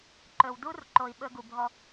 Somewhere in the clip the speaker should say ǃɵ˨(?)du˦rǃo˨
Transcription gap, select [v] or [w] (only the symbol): w